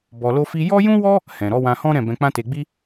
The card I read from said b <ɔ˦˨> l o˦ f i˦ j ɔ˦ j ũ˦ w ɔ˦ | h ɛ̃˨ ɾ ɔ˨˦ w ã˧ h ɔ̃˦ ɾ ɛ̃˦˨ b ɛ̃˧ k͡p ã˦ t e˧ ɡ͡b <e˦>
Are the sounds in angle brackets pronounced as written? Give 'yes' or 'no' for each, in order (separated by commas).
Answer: no, no